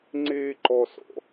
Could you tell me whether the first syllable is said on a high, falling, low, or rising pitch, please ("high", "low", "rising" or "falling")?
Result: high